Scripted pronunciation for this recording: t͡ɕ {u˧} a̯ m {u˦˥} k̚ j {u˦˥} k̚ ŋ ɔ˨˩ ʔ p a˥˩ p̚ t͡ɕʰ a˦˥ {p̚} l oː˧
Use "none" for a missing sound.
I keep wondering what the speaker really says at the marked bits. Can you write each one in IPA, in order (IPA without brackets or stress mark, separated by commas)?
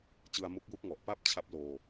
ɯ˧, u˦˥, u˦˥, p̚